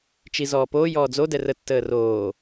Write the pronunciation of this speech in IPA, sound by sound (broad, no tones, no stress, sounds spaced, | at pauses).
t͡ʃ i z ɔː p oː j ɔː d͡z o d ɛ r ə tː əː r oː